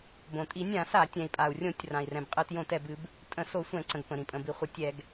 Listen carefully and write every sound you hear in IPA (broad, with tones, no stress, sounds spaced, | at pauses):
b õ˩ tʼ i˧˩˧ nʲ ã˧˩˧ s a˧˩˧ tʲ ɛ̃˩ i̯ pʼ a˩ u̯ rʲ õ˧˩˧ tʲ r ã˩ i̯ r ɛ̃˩ b qʼ ɨ˧˩˧ t j õ˧˩˧ t ɛ˩ b ɨ˧˩˧ b | tʼ ə̃˧˩˧ s o˧˩˧ sʷ ɛ̃˧˩˧ ǀ ə̃˩ ɡ p ə̃˩ ɾ ĩ˩ pʼ ə̃˩ b i˩ χʷ ə˧˩˧ tʲ ɛ˧˩˧ ɡ